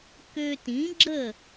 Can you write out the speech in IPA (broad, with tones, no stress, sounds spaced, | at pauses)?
k ø˧ t ĩ˩˥ ɡ͡ǁ ə˥˩